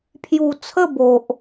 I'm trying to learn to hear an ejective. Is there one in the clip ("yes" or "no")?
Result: no